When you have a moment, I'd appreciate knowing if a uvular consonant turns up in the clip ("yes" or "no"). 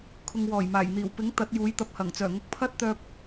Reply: no